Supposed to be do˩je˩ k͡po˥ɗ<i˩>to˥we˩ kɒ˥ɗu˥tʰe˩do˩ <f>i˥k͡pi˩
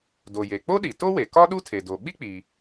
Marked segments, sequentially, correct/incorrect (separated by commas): correct, incorrect